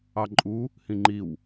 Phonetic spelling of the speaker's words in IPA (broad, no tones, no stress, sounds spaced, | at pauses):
ɑ ǃʼ u | h ĩ ŋ͡ǃ i w